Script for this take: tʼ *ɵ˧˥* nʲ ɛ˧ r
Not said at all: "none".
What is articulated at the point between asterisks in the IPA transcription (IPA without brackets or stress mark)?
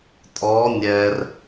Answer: ɔ˧˥